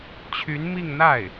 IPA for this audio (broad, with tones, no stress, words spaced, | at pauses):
t͡ɕʰy˧˥nmi˥˧ŋ n̪a˥˩ɪ̯